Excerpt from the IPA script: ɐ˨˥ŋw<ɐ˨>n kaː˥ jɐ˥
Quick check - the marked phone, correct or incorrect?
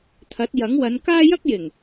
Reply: incorrect